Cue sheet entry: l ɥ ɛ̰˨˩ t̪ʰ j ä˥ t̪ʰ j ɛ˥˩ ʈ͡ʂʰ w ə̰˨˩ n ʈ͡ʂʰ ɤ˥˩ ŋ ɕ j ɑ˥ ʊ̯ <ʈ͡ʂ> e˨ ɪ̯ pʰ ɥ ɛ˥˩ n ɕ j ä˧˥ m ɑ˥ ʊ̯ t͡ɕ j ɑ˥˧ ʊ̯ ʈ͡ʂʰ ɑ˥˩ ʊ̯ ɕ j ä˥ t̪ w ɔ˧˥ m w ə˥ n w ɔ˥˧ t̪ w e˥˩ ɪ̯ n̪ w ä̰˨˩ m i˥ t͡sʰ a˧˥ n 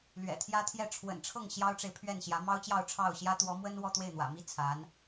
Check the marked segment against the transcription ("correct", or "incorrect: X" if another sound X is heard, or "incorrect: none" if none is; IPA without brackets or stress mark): correct